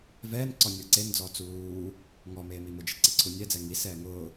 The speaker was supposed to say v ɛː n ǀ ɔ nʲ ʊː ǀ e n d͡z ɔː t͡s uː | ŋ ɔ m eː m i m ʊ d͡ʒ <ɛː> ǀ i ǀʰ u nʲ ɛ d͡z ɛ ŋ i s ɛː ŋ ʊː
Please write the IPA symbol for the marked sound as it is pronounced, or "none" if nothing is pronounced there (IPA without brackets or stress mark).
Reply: ɛ